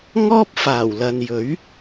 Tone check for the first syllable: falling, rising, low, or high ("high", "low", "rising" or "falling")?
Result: high